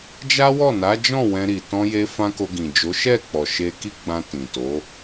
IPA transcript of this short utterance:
d͡ʒa˦wɔ˦˨ na˨˦d͡ʒɔ̃˦˨ wɛ̃˧ɾi˨ tɔ̃˧je˧ fã˦ko˧ɡĩ˨ d͡ʒo˨˦ʃɛ˦˨k͡pɔ˨ ʃe˧ ki˦ɡ͡bã˧ tĩ˨to˨˦

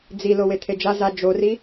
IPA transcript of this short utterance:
d͡zi lowet̪ʰed͡ʒa za d͡ʒori

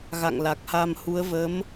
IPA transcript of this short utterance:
ɣa̰˧˨ŋ la˨˩k̚ha˧m hu˨˦ə̯ və˨˦m

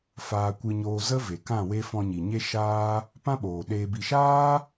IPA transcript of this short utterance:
faː˧kʷɨ˧ɲoː˧ zə˦ ve˨kã˦˨we˦ fɔ̃˧ɲi˨ɲe˦ ʃaː˦ | pã˦ɓoː˨ ɗeː˧bi˧ ʃaː˦

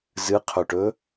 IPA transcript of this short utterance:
zɨqʰɵʈɵ

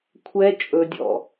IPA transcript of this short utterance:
kʷʰɛ t͡ʃʼɵdʲɔ̰

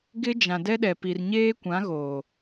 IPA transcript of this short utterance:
ɡɪ˦ d͡ʒã˨dɛ˦ɗɛ˨ pi˨rɲeː˦kʷã˨˦ ɣoː˨

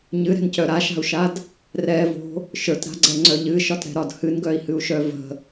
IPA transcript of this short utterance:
ɲɨɾɛ̤ncœ ɾaʃa̤u̯ʃad | rɛvo̤ | ʃə˞tɾa̤ɡ͡ǀɛŋ͡ǀœ ʎɨʃɒtɾɛ̤ɾɒd hɨnɡœi̯hɨu̯ʃœ və̤

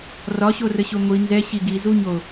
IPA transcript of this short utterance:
rɒɕorəɕo ŋʷi nzɛɕi ɡizuɲo

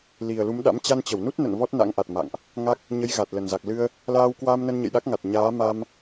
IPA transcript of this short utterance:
li˨˩ə̯lu˨˦mɗa̰˧˥m t͡ɕa˧nt͡ɕə˧˩wnu˦˥t̚ nə̰˧˨n vɔ˦˥t̚na̰˧˥ŋʔa˨˩t̚ ma̰˧˨ŋʔ | ŋa˦˥k̚ | ɲə˨˦j ɣa˨˩t̚lə˨˩nza˨˩k̚ lɨ˧ə̯ | laː˧wkwa˧mnə˧n ɲə̰˧˨jɗa˦˥k̚ŋa˨˩t̚ɲaː˨˦ ma˧m

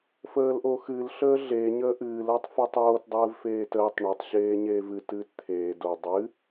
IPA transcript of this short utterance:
fəːlʔoxɨl ɬəːɮe ɲəːʔɨːl əːtˤfɨtˤoːt dˤɨːvfeːtəːtˤ ɳotˤ ɕeːɲeːvɨ tɨːtt̪ʰeː do dˤɨ

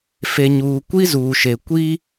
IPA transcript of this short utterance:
fe˨ɲuː˨ kʷi˦zuː˨ʃe˨ kʷi˦

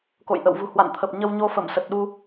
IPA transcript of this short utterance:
ko̰˧˨jʔə̰˧˨wvṳ˨˩ hwa̰˧˨nt̪ʰə˨˩p̚ ɲə˧wɲo˧fə˧˩msə˨˩t̚ ɗu˧

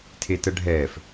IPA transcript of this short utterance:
tʰetəɖʱɛːf

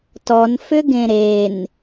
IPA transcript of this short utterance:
tɔnfʏɡẽ ɾen

